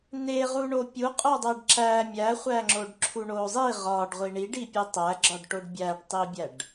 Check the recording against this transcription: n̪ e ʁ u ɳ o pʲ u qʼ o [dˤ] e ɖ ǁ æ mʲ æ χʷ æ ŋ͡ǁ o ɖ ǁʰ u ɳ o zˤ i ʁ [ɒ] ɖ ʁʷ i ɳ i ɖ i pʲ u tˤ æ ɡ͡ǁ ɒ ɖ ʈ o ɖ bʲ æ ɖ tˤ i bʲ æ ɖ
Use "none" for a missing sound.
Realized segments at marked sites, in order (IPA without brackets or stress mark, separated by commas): dˤ, ɒ